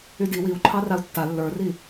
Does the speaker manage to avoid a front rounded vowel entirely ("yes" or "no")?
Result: no